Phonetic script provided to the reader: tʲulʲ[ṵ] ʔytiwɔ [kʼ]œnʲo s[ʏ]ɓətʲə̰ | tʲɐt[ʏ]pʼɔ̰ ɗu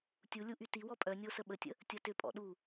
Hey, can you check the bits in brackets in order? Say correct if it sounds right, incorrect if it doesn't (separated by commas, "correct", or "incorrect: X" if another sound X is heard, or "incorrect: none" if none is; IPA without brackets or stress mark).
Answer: incorrect: u, incorrect: pʼ, incorrect: ə, correct